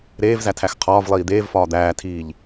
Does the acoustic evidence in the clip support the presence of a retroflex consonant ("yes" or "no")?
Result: no